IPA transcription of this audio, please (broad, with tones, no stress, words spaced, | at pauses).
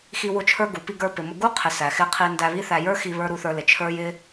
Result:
xi˧wʊ˧t͡ʃʰə˞˧ɡu˨ pi˧ɡə˞˧pɪ˨mʊ˧ ɡu˦ qʰɪ˨ sæ˨xɪ˧ qʰi˧ndæ˧βi˦θæ˧ jə˞˦xi˧βə˞˧ ɾu˧θə˞˧lɪ˨ t͡ʃʰə˞˧j ɪ˦